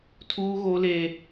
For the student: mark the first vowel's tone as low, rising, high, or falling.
high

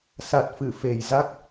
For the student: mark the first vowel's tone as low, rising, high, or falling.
low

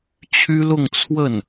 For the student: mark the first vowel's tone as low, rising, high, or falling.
high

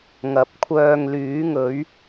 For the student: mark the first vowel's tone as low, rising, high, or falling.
rising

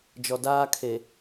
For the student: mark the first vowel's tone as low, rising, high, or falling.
low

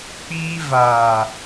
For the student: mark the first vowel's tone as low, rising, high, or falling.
high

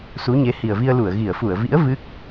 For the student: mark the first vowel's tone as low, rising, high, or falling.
rising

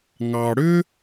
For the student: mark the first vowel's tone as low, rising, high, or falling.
low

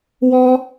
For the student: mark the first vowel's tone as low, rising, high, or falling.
high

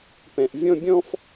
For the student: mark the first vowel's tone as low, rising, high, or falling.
low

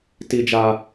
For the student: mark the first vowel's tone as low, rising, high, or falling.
high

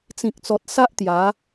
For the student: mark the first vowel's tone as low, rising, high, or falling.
low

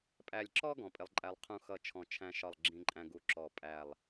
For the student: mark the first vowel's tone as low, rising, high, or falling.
falling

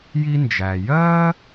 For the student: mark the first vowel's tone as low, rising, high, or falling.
high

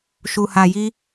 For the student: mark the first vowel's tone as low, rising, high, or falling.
low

